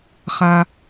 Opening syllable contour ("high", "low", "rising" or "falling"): low